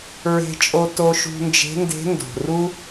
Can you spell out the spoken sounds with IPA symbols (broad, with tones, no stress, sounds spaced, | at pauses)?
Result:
ɹ e̤˧ t͡ʃʼ o˧ t o˧ ʃ ṳ˧ n d͡ʒ e̤˧˥ n d e̤˧˥ n d o̤˩ r u˥